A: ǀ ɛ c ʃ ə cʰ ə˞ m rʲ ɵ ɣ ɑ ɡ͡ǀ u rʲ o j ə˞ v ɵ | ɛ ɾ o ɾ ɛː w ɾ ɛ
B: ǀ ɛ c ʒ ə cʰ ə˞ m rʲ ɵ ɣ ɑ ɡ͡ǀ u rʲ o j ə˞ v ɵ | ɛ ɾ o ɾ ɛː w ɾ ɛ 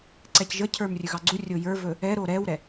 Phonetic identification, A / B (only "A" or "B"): B